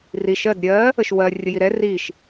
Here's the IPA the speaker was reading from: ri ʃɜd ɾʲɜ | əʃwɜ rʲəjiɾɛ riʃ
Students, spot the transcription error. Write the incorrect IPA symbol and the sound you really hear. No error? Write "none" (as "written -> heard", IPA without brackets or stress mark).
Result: none